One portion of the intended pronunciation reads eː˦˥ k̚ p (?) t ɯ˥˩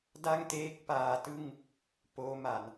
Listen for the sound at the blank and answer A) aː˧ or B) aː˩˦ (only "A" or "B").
A